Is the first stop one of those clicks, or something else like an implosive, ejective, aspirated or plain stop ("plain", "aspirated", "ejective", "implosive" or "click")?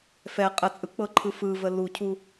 ejective